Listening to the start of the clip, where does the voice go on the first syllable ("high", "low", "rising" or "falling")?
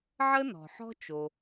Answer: high